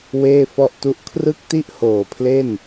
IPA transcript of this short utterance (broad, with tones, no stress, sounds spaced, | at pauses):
w eː˥˩ f ɔ˥˩ ʔ t u˥˩ ʔ kʰ r ɯ˥˩ k̚ t i˥˩ ʔ h oː˨˩ pʰ l e˥˩ n